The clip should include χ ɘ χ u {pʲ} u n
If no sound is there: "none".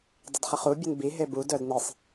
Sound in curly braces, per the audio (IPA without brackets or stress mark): bʲ